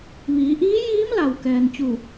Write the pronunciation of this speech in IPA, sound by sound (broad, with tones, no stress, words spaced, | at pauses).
ʋiː˩˧ʔiː˧˥jiː˧˥m la˩wkɛː˩nt͡ɕu˧˩